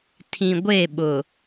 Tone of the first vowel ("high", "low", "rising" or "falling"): low